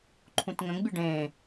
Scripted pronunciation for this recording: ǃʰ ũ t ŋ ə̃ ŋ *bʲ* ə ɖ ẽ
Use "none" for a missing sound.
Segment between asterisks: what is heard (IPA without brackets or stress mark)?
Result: bʲ